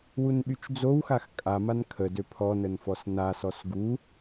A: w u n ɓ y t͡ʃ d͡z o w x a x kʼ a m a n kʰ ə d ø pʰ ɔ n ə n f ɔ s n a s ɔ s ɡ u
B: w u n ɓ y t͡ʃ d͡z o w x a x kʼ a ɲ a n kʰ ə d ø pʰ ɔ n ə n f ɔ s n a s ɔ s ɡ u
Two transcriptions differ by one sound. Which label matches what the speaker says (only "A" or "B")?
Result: A